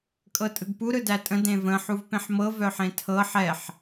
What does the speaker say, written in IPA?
kʼ ɤ tʼ ɯ ɡ p u ɾ ɯ d æ tʼ ə̃ d ẽ v ə̃ ħ u v p ẽ ħ m ɤ v œ ħ ẽ tʰ ɤ ħ ɛ ħ

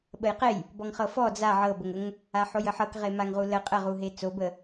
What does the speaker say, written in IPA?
ɓ ə j q e j | b ɔ ŋ χ ɤ f ɔ d͡z a ʕ ɤ b ə ŋ ə ŋ | a ħ o j ə ħ ɤ k ʁ e m a ŋ ʁ u l ə qʼ ə ʁ u ɦ e t͡s o b ə

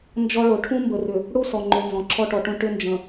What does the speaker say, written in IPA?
n d͡ʒ ɔ˦ ɭ o˨ ʈʰ ũ˦ m b ə˨ r ʏ˨ | ɽ u˦ s ɔ˨ ŋ͡ǃ ʏ˨ n z ɔ̃˨ ǁʰ ɔ˦ ʈ ɔ˨ ʈ ũ˦ ʈ ʏ˦ n d͡ʒ ə̃˨

